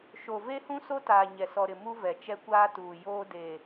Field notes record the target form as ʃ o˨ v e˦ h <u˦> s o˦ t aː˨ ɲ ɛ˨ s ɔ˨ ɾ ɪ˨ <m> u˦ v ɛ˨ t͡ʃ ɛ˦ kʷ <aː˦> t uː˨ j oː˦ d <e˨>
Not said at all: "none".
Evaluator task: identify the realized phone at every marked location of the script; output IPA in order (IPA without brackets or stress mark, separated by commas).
ũ˦, m, aː˦, e˨